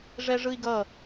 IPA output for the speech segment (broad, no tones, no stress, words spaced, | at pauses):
ʐɛʐɯi̯ɡʌ